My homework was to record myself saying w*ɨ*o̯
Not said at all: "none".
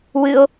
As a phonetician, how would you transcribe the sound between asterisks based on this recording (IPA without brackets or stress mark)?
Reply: ɨ